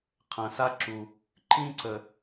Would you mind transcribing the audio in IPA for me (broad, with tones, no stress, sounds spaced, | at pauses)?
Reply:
qʰ ɐ̃˨ s a˦ ǁ u˨ | ǃ ĩ˦ ǀ ə˨